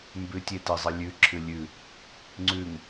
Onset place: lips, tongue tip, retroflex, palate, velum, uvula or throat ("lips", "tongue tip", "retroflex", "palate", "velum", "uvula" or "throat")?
lips